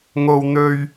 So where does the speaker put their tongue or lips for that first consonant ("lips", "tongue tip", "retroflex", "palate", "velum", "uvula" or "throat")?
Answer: velum